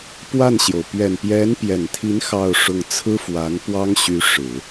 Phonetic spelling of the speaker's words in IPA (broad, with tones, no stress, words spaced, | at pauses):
pwa˥˩nɕjo˩ʊ̯ pɥɛ˨˩npjɛ˧˥npjɛ˨˩nt̪ʰi˧˥n xɑ˥˧ʊ̯ʂʊ˥˩ŋ t͡sʰɹ̩˥fwa˧˥npwɑ˥ŋɕy˧˥ ʂɻ̩˨˩˦